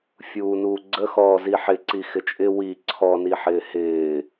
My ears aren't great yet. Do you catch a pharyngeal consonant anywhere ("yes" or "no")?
yes